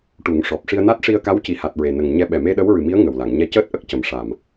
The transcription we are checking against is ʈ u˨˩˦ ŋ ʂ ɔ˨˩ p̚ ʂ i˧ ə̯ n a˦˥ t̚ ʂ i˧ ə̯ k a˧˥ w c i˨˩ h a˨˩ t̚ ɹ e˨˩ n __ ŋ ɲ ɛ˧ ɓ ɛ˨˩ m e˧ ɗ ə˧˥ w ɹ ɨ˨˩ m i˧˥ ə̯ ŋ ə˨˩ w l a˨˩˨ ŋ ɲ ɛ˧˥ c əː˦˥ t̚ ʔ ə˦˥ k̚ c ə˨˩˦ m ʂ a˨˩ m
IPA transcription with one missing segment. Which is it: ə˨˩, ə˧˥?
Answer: ə˨˩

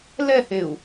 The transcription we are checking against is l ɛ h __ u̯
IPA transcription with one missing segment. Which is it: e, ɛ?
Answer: e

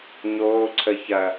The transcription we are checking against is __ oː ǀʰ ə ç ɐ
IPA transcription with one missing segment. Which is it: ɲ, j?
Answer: ɲ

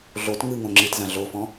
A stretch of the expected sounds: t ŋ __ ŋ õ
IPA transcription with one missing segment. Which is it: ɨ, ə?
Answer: ɨ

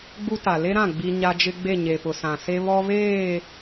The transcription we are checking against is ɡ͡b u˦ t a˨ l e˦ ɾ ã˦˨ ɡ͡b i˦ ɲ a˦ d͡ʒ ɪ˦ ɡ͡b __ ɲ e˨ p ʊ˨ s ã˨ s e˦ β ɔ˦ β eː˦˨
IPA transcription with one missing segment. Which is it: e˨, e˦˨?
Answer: e˦˨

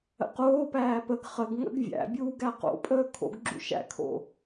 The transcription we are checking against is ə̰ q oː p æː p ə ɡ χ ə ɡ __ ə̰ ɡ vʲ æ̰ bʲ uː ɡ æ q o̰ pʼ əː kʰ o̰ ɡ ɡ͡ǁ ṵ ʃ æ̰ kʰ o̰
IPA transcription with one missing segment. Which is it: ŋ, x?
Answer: ŋ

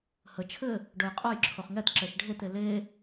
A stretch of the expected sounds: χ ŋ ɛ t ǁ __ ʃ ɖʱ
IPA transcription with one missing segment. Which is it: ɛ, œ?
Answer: ɛ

